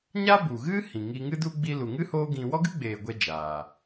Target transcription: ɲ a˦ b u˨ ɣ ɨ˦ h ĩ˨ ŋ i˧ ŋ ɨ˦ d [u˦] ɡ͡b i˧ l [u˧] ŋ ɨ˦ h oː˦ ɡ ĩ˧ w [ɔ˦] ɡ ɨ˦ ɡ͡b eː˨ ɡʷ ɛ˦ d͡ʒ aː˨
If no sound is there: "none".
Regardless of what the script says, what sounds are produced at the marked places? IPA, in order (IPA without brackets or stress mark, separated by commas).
u˦, u˨, ɔ˦